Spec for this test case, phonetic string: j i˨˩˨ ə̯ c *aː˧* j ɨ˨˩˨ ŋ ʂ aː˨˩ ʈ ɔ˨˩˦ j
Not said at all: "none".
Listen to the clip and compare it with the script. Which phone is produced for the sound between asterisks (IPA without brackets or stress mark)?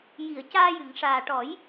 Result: aː˧